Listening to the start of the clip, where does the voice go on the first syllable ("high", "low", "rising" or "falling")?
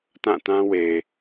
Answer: falling